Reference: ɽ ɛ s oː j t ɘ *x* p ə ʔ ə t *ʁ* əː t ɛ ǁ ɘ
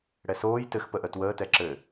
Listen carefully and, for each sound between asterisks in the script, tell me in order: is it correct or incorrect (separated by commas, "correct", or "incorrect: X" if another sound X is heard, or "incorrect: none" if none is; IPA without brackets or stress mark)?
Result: correct, incorrect: w